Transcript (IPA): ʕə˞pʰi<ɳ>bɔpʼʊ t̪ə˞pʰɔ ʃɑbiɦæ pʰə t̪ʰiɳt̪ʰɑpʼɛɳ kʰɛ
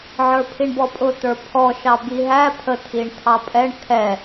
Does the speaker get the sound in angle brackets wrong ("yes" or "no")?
no